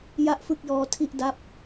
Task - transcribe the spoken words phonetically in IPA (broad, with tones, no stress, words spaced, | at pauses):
ja˥˩ʔfɯ˥˩k̚jɔː˦˥ tʰi˥˩ʔda˥˩p̚